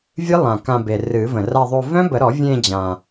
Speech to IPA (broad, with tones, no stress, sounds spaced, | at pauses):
vʲ ɨ˦˥ lˠ ã˨˩ k ã˧ b e˨˩ r ɨ˨˩˦ v ə̃˨˩ r a˥˧ ðˤ o˥˧ v œ̃˦˥ b ə˨˩˦ ɾ ɔ˨˩˦ vʲ ẽ˥˧ d͡ʑ ã˨˩